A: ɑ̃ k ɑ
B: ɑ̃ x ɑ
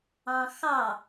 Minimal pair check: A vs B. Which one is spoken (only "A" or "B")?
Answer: B